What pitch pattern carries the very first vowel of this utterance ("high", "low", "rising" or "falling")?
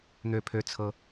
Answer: low